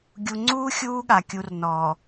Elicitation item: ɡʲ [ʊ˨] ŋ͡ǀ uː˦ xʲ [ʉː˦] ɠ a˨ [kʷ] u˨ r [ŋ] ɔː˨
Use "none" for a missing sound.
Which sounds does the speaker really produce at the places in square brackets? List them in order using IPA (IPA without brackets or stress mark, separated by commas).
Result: u˨, uː˦, kʲ, n